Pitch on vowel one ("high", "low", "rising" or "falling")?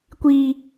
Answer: high